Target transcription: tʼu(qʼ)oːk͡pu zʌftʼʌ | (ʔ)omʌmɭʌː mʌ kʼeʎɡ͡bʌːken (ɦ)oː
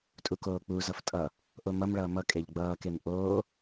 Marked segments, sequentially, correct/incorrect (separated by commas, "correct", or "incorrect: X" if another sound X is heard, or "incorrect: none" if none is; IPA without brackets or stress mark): incorrect: k, correct, incorrect: ʔ